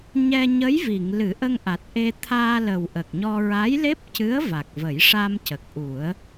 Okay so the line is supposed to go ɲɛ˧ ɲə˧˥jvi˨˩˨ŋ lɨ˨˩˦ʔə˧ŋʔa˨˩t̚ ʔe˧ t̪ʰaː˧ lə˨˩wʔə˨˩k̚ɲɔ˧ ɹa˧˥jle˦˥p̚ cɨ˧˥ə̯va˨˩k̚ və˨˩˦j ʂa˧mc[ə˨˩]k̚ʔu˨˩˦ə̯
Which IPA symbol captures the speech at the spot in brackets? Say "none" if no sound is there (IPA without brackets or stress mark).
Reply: ə˨˩